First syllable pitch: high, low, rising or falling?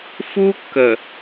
high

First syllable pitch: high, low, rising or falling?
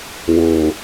low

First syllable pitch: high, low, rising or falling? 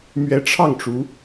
rising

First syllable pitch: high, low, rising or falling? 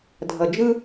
low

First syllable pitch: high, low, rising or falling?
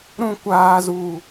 low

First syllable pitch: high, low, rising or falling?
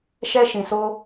high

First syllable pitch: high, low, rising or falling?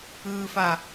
low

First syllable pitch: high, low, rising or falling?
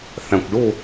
low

